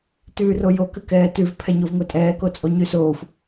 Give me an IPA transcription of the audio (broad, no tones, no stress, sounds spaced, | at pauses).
t ʉː r o j o k ɘ k ɛː t ʉ v pʰ ɛ ɲ o v ŋʷ ɛ tʼ ɛː k o t͡sʼ o ɲ ʉ s oː xʷ